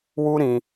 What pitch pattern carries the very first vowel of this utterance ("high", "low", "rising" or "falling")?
high